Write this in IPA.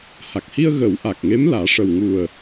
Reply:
ha˨˩k̚hi˧ə̯ɣə˨˩˦w ʔa˨˩k̚ŋe˧˥m laː˨˩˦ʂə˨˩wŋu˨˩ə̯

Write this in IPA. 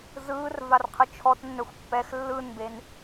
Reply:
zɯːrvarqʰɯ t͡ʃʰɔtnːœxʷ pːɛx lːɯnben

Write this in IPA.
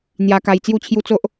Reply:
n̪ja˧ka˧j t͡sju˥˧t͡ɕʰju˦t͡so˦ʔ

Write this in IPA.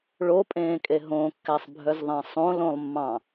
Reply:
ɭopʼẽːkʼe ɦõkːæsˤbʱœzðˤæ̃ sˤõlõlˠmːɑ̃

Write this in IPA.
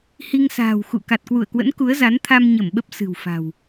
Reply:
hi˧ŋsa̤ː˨˩w xṵ˧˨ ka˨˩t̚kwu˧˩ə̯kwə̰˧˥n ku˨˦ə̯za˨˦nt̪ʰa˧m ɲə˧˩m ɓə˦˥p̚sɨ̤˨˩wfa̤˨˩w

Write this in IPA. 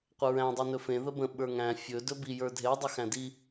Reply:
qʷəɹæ̃ dˤinɵfẽ ðəbə̃ ɓə˞ŋæ̃ fʲɵ dɵbi jə˞dʱe dˤəxæ̃di

